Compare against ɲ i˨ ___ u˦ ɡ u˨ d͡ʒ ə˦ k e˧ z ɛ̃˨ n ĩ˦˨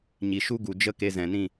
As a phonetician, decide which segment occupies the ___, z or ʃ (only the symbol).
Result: ʃ